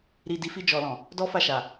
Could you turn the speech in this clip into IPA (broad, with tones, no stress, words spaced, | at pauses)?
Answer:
ɾi˨di˨˦fi˧ d͡ʒɔ˨lɔ̃˨ | dɔ˦fa˦˨ʃa˨